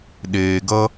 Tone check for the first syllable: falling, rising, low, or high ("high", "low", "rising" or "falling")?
low